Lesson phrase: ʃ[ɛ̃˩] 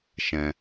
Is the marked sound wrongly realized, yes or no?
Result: no